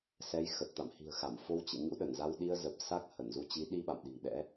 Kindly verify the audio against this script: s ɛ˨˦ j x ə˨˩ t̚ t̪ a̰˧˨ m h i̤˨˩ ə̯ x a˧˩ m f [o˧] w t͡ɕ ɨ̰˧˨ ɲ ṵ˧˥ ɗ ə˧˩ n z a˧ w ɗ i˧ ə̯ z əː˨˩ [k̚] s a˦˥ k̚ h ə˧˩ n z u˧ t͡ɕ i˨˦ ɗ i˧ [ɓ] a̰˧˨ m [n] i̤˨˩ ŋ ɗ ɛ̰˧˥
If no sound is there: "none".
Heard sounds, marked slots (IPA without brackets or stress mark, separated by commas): o˧, p̚, ɓ, ɗ